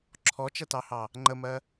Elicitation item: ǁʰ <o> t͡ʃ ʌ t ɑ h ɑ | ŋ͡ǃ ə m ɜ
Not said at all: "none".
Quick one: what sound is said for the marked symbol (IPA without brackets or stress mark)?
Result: ɔ